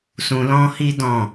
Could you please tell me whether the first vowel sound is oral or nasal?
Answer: nasal